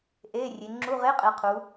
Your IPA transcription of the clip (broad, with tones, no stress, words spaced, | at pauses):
ʔeː˧˥˧rʲe˨˦ ŋ͡ǁu˧˥˧ʁe˧˥˧qʼe˨˦ qʰu˨˦